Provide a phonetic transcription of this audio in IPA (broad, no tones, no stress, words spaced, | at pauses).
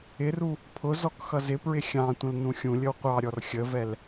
ɪru | pʰʊ zɔkxʌzɪpɹɪ xʲɑ̃tʷə̃l nũxʲũlʲəw qʷɑɾʲɔr xʲəvɛl